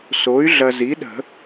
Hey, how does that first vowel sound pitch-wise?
rising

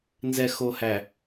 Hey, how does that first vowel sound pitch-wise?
low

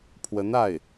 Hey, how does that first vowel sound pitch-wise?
rising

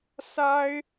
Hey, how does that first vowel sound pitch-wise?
high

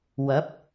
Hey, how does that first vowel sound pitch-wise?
rising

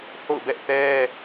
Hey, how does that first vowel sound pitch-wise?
falling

